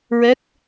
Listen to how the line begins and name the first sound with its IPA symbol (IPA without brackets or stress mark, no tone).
ɹ